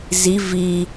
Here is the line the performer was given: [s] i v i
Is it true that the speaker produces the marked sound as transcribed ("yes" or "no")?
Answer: no